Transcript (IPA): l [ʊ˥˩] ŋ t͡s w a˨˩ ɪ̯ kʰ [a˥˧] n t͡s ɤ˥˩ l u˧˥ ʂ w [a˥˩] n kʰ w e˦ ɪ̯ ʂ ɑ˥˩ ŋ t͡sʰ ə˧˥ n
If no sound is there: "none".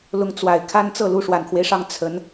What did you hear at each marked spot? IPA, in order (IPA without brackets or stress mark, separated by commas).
ʊ˧˥, a˥˧, a˨˩